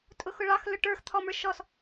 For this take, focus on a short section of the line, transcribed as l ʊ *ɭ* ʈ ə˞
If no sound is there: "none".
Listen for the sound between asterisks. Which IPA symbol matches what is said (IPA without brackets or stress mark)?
none